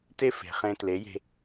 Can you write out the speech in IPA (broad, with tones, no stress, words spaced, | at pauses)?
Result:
te˥ fe̤˩χẽ˧ tle˩˥je̤˧